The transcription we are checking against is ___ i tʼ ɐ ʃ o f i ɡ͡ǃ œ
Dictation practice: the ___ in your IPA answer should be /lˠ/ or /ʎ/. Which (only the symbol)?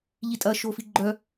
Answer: ʎ